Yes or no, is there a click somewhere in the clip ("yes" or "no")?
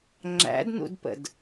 yes